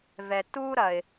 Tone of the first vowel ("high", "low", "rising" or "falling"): low